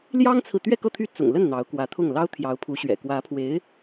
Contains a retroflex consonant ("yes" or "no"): no